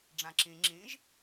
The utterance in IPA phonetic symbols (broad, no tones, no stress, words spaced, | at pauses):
ɖ͡ʐãǁĩ ŋ͡ǁĩʒ